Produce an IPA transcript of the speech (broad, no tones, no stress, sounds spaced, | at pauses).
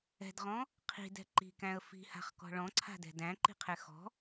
ɛ̤ d ʁ ɔ̃ | qʰ i̤ d ɛ̤ ǃ i̤ k æ̃ ə̯ f i̤ h a̤ χ k ɔ̤ ɭ ɔ̃ ǀʰ a̤ d ɛ̤ d æ̃ ǃ i̤ qʰ ɛ x ɔ̤